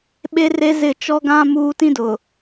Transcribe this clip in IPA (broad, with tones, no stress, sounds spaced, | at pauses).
ɓ e˦ r e˦ z ɪ˦˨ t͡ʃ ɔ˦ ɡ ã˦ m uː˦ t ĩ˦ d ʊ˨